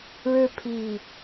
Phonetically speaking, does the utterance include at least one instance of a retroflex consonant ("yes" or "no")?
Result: yes